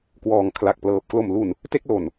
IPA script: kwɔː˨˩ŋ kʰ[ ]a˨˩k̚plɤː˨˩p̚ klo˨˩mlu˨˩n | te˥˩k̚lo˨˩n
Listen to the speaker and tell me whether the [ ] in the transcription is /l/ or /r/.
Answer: l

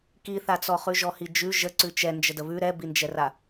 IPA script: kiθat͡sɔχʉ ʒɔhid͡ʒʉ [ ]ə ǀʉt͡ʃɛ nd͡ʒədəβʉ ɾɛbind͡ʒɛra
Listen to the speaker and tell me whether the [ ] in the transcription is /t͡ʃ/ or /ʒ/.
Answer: ʒ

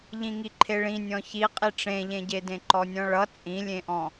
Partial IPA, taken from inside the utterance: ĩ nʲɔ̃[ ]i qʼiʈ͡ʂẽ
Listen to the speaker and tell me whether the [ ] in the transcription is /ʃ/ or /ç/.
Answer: ç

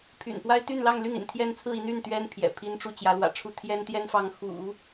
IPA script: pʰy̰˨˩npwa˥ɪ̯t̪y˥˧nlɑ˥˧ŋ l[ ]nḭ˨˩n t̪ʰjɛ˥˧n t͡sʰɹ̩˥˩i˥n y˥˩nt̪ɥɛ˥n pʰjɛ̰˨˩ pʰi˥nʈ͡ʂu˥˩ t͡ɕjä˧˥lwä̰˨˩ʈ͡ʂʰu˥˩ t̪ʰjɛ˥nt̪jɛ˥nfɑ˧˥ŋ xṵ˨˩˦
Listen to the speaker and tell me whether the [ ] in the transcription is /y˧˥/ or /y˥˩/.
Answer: y˥˩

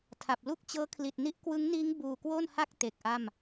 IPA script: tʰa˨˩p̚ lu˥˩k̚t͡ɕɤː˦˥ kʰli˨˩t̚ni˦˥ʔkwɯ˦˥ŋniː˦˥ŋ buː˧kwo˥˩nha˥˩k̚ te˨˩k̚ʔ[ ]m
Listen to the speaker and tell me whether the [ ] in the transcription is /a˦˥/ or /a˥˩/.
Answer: a˥˩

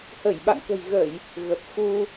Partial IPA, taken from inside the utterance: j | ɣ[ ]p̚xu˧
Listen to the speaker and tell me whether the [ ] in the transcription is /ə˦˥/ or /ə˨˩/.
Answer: ə˨˩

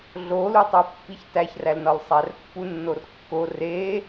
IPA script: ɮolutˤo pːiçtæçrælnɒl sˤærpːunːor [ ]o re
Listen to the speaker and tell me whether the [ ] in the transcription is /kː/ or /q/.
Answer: kː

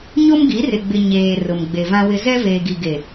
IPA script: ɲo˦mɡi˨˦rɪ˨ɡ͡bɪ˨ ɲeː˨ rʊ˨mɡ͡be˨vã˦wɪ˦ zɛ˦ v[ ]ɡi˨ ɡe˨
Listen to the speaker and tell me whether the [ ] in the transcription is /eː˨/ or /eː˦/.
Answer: eː˨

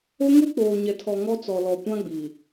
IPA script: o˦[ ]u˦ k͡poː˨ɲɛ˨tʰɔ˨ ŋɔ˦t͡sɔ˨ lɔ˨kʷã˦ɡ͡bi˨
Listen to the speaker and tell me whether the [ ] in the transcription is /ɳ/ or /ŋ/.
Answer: ŋ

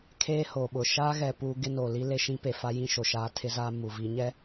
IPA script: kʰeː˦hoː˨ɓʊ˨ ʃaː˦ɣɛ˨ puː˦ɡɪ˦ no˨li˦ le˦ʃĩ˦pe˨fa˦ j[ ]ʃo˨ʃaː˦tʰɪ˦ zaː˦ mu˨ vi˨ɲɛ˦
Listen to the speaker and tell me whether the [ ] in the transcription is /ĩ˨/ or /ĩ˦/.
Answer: ĩ˦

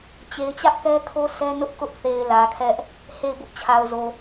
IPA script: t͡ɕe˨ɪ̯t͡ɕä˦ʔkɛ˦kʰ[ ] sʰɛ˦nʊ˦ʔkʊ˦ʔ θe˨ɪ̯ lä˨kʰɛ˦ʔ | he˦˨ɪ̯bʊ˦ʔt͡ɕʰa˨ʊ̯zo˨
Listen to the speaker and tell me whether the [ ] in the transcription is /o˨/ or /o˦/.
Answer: o˦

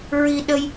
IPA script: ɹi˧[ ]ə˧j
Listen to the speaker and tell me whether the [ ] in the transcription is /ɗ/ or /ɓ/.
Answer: ɗ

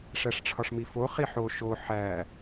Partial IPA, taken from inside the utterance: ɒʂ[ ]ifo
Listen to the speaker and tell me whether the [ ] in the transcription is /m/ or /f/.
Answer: m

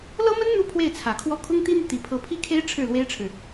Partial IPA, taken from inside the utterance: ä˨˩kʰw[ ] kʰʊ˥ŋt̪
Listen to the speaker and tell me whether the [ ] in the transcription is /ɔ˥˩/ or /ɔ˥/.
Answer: ɔ˥˩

